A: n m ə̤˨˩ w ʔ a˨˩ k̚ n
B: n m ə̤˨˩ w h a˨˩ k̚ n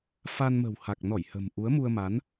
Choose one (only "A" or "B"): B